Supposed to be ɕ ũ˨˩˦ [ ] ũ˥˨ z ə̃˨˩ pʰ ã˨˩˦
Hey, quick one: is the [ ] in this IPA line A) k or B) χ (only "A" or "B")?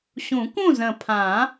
A